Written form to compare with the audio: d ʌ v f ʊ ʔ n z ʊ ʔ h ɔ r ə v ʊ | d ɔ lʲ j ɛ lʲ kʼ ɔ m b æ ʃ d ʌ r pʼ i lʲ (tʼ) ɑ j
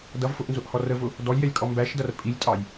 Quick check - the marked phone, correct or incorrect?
correct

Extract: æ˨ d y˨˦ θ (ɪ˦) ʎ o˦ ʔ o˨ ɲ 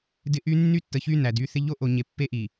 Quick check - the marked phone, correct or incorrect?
correct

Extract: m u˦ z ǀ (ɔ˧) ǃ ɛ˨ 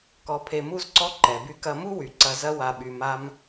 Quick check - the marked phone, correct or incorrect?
incorrect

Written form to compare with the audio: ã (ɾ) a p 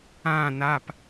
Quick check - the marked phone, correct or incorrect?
incorrect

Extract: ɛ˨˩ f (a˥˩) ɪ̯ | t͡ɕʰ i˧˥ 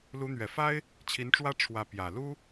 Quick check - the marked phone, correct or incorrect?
incorrect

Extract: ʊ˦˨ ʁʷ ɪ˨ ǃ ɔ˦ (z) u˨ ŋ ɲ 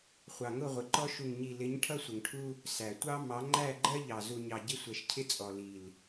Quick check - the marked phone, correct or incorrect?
incorrect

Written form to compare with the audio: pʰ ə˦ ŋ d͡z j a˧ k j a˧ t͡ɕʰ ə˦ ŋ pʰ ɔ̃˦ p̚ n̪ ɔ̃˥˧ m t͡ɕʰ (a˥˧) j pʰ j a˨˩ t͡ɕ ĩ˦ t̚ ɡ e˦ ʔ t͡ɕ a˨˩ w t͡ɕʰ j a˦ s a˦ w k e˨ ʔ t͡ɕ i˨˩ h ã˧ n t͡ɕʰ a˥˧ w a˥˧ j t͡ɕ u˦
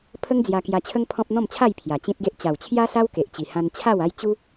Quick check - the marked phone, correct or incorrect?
correct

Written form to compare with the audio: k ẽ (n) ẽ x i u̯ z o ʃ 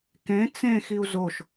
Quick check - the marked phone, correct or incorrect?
incorrect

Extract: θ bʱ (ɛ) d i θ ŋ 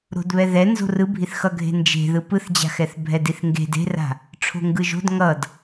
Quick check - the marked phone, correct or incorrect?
correct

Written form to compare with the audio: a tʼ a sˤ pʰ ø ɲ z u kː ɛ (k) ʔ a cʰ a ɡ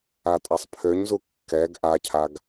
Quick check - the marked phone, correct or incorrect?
incorrect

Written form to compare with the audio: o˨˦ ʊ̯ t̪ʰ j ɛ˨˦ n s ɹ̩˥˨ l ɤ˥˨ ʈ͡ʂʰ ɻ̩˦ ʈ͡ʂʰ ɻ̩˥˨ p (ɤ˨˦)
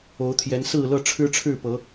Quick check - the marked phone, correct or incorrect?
correct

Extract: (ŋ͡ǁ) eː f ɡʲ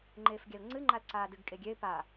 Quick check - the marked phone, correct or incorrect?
incorrect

